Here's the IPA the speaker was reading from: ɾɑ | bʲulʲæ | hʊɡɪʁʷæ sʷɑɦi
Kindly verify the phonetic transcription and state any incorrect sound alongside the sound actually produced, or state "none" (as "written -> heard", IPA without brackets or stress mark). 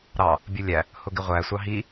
none